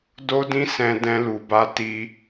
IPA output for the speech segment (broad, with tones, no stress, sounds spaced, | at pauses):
d o˦ d ĩ˦ s ɛ̃˧ d ɛ̃˧ l u˨ b a˧ t i˧